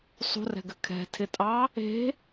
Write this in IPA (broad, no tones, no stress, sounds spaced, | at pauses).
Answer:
sˤ ṳ r ɛ̤ ɡ ɘ kʰ ɛ̤ tʰ ɪ tʼ ɑ | e̤